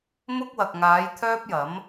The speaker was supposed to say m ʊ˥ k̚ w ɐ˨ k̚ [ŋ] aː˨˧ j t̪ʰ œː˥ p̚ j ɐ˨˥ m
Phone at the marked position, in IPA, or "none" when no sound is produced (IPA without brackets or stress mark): ŋ